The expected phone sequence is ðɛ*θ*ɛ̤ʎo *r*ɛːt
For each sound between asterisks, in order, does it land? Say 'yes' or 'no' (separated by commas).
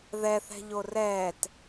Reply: yes, yes